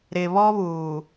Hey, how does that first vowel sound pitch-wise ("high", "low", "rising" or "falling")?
low